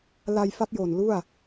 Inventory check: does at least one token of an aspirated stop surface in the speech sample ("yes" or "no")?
no